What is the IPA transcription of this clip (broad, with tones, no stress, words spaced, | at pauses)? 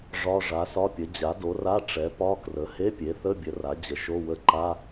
ʐɒ˧˥˧ ʐa˩˥sɒ˧˥˧pʲə˩˥ d͡ʑa˩˥do˩˥ra˧˥˧ ʈ͡ʂɛ˩˥pɒ˧˥˧krə˩˥ he˧˥˧pʲe˩˥θə˧˥˧bʲə˩˥ ra˩˥d͡ʑə˩˥ʃo˧˥˧wə˧˥˧ ǃa˧˥˧